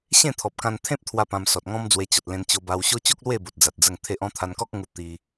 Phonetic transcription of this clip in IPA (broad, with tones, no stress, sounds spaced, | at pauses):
ɕ ẽ˥˧ t̪ʰ ɔ˨ p̚ k ã˧ n t̪ʰ ẽ˦ p̚ t̪ʰ w a˧ p ã˧ m s ɔ˨ t̚ ŋ ɔ̃˦ m d͡z w e˧ t͡ɕ ɔ˨ t̚ l ẽ˧ n t͡ɕ o˧ b a˧ w ɕ o˦ t͡ɕ o˦ k̚ l w e˥˧ b o˨ t̚ d͡z a˨ t̚ d͡z ə˥˧ ŋ t̪ʰ e˦ ʔ ɔ̃˥˧ t̪ʰ a˧ n k ɔ˦ k̚ ŋ u˧ t̪ i˧